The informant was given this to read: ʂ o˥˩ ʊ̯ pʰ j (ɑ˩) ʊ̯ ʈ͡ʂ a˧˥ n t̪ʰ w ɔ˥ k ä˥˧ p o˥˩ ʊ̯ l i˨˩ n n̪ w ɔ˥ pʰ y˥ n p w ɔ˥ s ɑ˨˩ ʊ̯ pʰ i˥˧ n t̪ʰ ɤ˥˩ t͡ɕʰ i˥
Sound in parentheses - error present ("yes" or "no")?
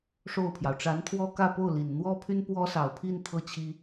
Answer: no